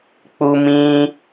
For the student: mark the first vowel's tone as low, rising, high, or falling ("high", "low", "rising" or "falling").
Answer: high